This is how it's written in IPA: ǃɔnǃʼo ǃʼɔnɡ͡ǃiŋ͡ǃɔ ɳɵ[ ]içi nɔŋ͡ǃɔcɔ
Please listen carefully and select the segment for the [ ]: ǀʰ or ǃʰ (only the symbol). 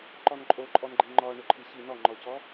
ǃʰ